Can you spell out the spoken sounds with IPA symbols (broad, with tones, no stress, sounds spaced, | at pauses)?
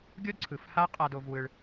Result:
ɡʲ o˦ d ǀʰ ɯ˨ f h a˦ qʼ a˧ d o˧ v w ɯ˧ ɭ